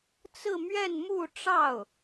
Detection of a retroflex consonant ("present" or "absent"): present